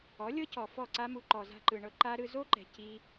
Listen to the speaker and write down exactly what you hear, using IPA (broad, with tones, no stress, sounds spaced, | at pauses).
ɔ˨˦ lʲ ɤ˦ c ɔ˨ f ɔ˦˨ ǀ a˦ m u˧ ǃ ɔ˨ z a̤˧ ǃ ɯ˨ ɳ ɤ˧ ǃ a˦ ɾ ɯ˧ z o˦ ǃ ɛ̤˨ c i˦